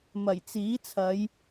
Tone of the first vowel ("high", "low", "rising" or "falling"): low